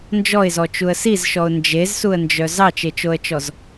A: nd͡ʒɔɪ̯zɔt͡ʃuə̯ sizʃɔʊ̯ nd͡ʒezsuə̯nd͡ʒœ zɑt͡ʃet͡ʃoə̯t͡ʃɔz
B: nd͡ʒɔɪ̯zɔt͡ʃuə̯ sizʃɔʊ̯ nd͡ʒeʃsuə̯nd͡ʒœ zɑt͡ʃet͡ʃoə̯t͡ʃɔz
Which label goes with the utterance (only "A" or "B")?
A